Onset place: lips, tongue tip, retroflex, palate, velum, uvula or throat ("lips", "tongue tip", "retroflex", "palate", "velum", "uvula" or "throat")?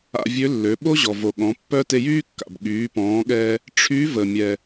lips